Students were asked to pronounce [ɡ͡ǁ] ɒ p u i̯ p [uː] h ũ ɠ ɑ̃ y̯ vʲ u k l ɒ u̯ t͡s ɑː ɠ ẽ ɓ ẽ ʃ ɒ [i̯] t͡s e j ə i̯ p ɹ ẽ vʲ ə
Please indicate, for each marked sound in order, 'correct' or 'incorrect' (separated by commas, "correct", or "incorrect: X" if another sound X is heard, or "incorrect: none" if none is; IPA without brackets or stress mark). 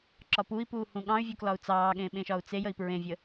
incorrect: ǁ, correct, incorrect: u̯